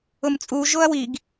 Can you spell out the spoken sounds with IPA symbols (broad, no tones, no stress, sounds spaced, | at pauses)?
ʊ m t͡sʼ u ʒ o ɐ̯ w i ɡ